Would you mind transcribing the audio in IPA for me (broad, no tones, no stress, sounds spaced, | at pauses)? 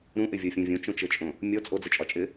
ɾ ũ ʔ ɪ vʲ ɔ fʲ õ vʲ õ t͡ʃ õ t͡ʃ ɘ t͡ʃʼ õ | mʲ ɔ t͡sʼ o d͡z ɘ t͡ʃʼ ɒ t͡ʃʼ ɪ